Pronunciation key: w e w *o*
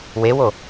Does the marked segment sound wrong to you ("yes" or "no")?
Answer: no